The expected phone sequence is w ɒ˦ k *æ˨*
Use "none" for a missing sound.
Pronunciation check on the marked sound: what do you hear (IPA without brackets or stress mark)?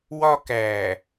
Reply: æ˨